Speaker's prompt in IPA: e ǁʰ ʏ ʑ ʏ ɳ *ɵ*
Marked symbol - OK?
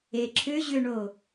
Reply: no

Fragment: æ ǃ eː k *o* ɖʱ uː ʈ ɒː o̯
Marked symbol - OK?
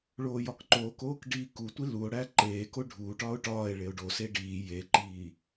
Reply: yes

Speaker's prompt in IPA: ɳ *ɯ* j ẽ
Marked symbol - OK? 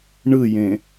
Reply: yes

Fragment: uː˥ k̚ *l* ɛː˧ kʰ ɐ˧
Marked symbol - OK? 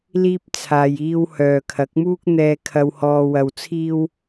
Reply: no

